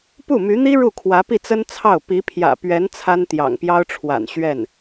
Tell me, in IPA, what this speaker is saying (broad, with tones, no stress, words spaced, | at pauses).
pu˥˩my˧˥n̪i˥ ɻu˥˩kʰwä˧˥pi˥˩t͡sə˥n t͡sʰɑ˥˩ʊ̯ pi˧˥pʰjä̰˨˩pɥɛ˧˥n t͡sʰa˥nt̪jɑ̰˨˩ŋpjɑ˥ʊ̯ʈ͡ʂʰwa̰˨˩n ɕɥɛ˥˩n